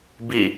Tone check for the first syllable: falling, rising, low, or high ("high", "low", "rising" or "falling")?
falling